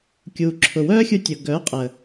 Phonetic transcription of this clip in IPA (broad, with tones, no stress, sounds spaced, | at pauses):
kʲ uː˨ ǁʰ ʊ˨ w œː˦ xʲ u˧ tʲ ʊ˨ ɡ œ˨˦ qʼ ə˨